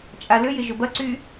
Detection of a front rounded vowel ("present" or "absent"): present